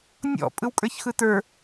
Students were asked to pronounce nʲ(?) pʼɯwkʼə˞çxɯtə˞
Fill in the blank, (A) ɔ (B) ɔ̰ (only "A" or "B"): B